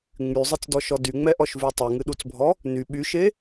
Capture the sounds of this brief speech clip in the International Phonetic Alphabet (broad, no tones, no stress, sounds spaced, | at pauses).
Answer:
ŋ͡m y zˤ ɨ t͡s d ɔ ʃ ɔ d y ŋ͡m ɛ ʔ ɔ ʃ v y tˤ ɨ ŋ ɨ ɗ u t͡s bʱ ɔ | n y ɓ y ʃ e